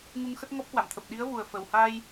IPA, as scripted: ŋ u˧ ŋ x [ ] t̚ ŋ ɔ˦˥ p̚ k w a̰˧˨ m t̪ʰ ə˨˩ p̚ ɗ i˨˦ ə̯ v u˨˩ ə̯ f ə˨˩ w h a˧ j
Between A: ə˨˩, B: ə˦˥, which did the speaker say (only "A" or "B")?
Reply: B